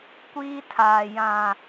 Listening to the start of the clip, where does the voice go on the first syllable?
high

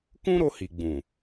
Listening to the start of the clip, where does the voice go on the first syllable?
high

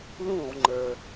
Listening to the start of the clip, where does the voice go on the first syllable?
falling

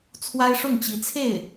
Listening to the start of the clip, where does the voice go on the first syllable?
high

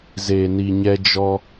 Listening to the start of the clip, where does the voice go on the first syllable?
low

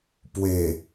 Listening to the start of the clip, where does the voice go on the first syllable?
low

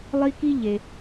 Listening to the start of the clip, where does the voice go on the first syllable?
high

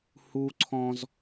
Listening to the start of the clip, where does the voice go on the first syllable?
high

